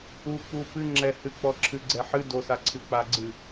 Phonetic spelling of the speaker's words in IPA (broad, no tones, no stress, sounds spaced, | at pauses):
u k͡p u p ɨ ŋ͡ǁ ɛ h ɨ k͡p ɔ ǁʰ ɨ ɡ͡ǀ ɛ ħ ɨ d o s a ǀʰ ɨ k͡p a ɡ͡ǀ ɨ